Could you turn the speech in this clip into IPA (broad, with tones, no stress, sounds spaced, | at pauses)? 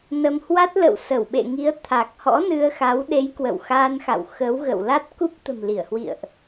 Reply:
n ə˧ m h w a˦˥ t̚ l ə̰˧˨ w s ə˧˩ w ɓ ḛ˧˨ ŋ i˨˦ ə̯ t̪ʰ a˨˩ k̚ h ɔ̰˧˥ n ɨ˧ ə̯ x a˨˦ w ɗ e˨˦ j k w ə̰˧˨ w x aː˧ n x a̰˧˨ w x ə˨˦ w ɣ ə̰˧˨ w l a˦˥ t̚ k u˦˥ p̚ t̪ ə̤˨˩ m l i˧˩ ə̯ h w ḭ˧˨ ə̯ ʔ